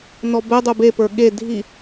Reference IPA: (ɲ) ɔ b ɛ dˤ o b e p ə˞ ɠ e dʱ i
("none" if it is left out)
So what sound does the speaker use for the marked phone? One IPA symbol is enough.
n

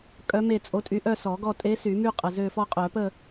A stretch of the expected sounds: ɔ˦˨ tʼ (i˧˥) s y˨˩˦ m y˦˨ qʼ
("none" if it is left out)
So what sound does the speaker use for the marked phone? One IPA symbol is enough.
e˧˥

